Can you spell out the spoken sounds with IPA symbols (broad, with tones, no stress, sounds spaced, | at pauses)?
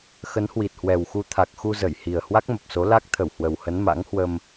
x ə˨˦ n h w i˨˩ t̚ h w ɛ˨˩ w x u˧ t̪ʰ a˨˩ k̚ x u˧ z ə˧˩ j h i˨˩ ə̯ h w a˦˥ k̚ m ə˨˩ p̚ s o˨˦ l a˦˥ k̚ t̪ʰ ə˧˩ w h w ə˨˩ w h ə˨˦ n m a̰˧˥ ŋ h w ə˧ m